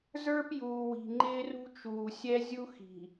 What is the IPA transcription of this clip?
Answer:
z ə˞˦ p j uː˨ w i̤˨ ŋ͡ǃ ɪː˦ r ṳ˦ t͡ʃ uː˨ sʲ ɛ˦ zʲ u˦ x i̤˨

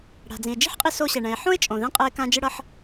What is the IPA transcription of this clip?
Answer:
ɽ a̤˩ d͡z ĩ˩ e̯ d͡ʒ i̤˥ ħ qʼ i˧ s o˧ ɕ ɛ˩ ɳ ɛ̃˩ e̯ ħ õ˥ e̯ t͡ʃʼ õ˩ ð ɛ̃˧ qʼ ɛ˧ e̯ k ã˧ d͡ʒ ɯ˧ ɽ ʌ˧ ħ

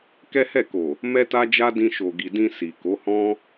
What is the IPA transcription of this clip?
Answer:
k ɛ˦ h ɛ˦˨ k o˨ | m ɛ˦ t a˦ d͡ʒ a˦ d ĩ˧ ʃ o˨ ɡ i˨ d ĩ˧ s i˨ k o˨˦ h ɔ̃˦

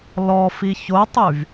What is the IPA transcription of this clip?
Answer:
l ɔ f i ç o tˤ y v

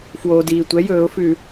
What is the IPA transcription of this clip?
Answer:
f w oː˩ d iː˩ tʷ ɛ˩˥ j ɵː˧˩˧ ʊ̯ f ʉ˧˩˧

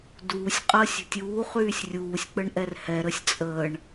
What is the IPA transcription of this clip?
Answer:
d uː sʲ qʼ əː sʲ ə̤ tʲ uː χ yː sʲ rʲ uː sʲ k͡p ə ɳ ʔ ɛ r h ɛ ɾ ə sʲ t͡sʼ əː ɳ

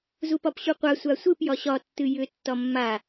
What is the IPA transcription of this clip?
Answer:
z u p ɒ p ɕ u qʷ a sʷ a sʷ ɨ p j ɒ ɕ ɒ tː ɨ j ʏ tː ɒ mː a

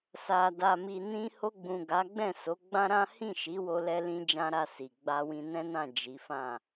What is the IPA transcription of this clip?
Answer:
s a˨ d a˨ m i˨ n ĩ˧ h o˧ ɡ͡b ũ˨ ɡ a˨˦ ɡ͡b ɛ̃˦˨ s o˨˦ ɡ͡b ã˦ ɾ ã˦ h ĩ˦˨ ʃ i˨˦ w o˧ l ɛ˧ l ĩ˦ d͡ʒ ã˦ ɾ a˦˨ s i˨ ɡ͡b a˧ w ĩ˧ n ɛ̃˦ n ã˦˨ d͡ʒ i˨˦ f ã˦˨

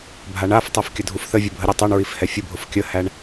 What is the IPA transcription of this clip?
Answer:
bʱ a ɳ a f tˤ ɛ f kʲ ə dʱ u f θ ə vʲ ə bʱ ə ɾʲ u tˤ u ɳ ɹ i f h ɛ fʲ ʊ bʱ ʊ f kʲ ə h æ ɳ

